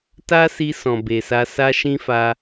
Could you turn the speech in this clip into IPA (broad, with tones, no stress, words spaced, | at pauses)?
ta˦si˧ sɔ̃˨be˨sa˧sa˦ ʃĩ˦fa˧